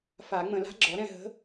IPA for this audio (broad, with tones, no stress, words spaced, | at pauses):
fa˨˩˦ ŋ͡mə̃˨˩˦la̤˧˥ɡ͡ǁɔ˩˥ɾɛ̃˥˩ ɦə̤˧˥